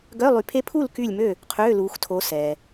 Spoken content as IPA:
ɡœ˧˥˧lˠy˨˦pʰe˦˥ pʰu˥˨l ky˥˨lʲmø˥˨ | qʰøː˧˥˧luː˨˦xtʰo˨˦ sɛː˩

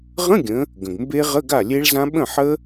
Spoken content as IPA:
ʁə̃˧˥˧ɡʲə̃˩˧ | ɡə̃˩ɡmbe˦˥ʁə˧˥˧ ɡa˥˩lʲe˦˥ɭzã˦˥ ɓə̃˥˩ħə˦˥

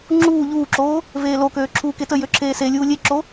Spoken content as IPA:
ŋ͡ǁuː ʎuːǁoː | veːlokøː ǁʰuːketəjø ǁʰeːselʲuː lʲeǁo

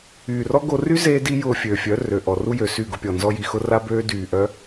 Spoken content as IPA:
yː˨rɔ˦ ɡo˧ ry˦zeː˧di˧ jʊː˧fʲøː˨fʲœ˨˦ rø˨ʔɔ˨ru˦jø˨ sy˦˨ɡʊ˧pʲɔ˨ nzɔ˧ji˨ xʊ˧ra˧bøː˧ dyː˨ʔœ˦

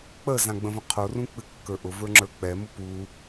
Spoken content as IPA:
k͡pəzãɡ͡bə̃və̃ qʰorũk͡pɨkːə˞ ʔʊvə˞ŋ͡ǁə˞ k͡pɛmʊ pu

